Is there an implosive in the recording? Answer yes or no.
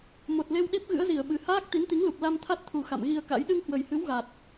yes